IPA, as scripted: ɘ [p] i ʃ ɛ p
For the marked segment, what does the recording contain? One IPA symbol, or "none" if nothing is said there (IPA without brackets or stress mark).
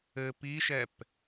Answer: p